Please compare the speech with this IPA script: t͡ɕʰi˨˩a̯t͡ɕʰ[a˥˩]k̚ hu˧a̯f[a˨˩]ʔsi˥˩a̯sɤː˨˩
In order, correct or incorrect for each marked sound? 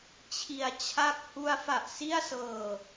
correct, correct

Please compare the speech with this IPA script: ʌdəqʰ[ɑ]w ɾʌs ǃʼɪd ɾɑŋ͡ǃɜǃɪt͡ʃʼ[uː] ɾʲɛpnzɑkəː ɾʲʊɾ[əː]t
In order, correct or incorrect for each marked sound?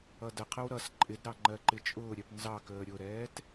incorrect: ə, incorrect: ʊː, incorrect: ɛː

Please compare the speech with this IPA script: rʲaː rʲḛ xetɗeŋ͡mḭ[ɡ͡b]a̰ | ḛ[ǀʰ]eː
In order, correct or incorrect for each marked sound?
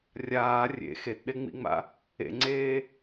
incorrect: ŋ͡m, incorrect: ŋ͡ǀ

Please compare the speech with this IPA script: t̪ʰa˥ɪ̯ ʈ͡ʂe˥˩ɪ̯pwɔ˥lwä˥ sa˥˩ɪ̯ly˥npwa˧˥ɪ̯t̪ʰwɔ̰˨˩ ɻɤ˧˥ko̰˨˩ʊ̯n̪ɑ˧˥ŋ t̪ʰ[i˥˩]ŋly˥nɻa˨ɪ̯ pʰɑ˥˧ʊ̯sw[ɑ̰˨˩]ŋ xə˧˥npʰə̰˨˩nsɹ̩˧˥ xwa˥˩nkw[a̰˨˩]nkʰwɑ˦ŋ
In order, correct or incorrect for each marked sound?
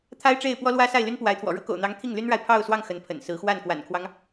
correct, incorrect: ɑ˥˩, correct

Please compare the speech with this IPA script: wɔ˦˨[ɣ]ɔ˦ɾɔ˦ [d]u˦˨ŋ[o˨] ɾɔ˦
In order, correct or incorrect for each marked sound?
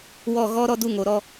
correct, correct, correct

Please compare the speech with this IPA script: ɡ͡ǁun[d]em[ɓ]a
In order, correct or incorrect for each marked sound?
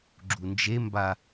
incorrect: d͡ʒ, incorrect: b

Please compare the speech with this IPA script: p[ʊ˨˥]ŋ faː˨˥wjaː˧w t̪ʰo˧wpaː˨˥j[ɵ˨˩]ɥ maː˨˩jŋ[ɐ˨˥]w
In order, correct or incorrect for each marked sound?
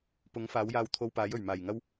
correct, correct, incorrect: ɐ˥

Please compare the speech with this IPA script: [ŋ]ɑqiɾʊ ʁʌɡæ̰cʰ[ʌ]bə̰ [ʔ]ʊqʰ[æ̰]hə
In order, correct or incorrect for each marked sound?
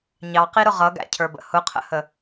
incorrect: ɲ, incorrect: ə˞, incorrect: h, incorrect: ə̰

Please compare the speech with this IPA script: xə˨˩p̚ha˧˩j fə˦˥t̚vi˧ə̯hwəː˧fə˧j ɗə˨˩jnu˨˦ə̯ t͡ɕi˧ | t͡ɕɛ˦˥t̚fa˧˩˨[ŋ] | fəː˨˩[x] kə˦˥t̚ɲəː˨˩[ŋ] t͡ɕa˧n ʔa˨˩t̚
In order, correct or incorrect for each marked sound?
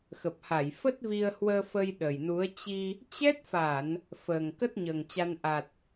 incorrect: n, incorrect: ŋ, correct

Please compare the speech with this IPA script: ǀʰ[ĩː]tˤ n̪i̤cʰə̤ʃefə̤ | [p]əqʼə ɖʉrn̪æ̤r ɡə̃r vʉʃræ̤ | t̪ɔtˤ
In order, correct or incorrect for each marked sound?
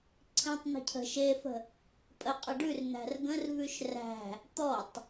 incorrect: ĩ, incorrect: pʼ

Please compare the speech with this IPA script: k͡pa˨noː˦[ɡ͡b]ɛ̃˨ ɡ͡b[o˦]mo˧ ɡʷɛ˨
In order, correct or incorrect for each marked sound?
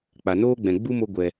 correct, incorrect: u˦

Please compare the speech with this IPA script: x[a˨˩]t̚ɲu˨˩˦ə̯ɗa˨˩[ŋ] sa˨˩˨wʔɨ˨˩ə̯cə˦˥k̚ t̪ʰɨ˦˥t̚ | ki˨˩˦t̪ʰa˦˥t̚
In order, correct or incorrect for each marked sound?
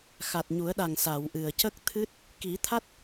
correct, correct

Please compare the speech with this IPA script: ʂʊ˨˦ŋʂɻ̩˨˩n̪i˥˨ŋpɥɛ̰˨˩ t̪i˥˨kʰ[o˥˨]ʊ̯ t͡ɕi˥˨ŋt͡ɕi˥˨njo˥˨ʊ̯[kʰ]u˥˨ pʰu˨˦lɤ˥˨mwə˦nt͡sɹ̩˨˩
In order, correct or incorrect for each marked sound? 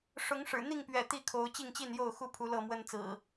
incorrect: o˨˦, incorrect: x

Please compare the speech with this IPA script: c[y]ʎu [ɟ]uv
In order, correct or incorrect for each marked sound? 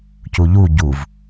incorrect: u, correct

